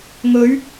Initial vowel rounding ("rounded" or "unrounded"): rounded